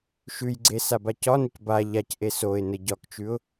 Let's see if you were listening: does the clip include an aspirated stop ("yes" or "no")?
no